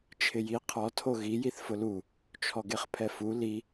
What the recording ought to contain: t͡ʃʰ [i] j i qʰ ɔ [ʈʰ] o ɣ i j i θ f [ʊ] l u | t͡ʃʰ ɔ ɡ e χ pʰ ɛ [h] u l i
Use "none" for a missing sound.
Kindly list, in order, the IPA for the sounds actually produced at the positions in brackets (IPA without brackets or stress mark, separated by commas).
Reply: ɪ, tʰ, ʊ, f